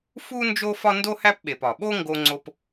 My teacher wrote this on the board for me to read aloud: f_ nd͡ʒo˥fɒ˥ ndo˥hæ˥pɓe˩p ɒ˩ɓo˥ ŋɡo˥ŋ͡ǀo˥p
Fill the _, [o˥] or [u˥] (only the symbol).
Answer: u˥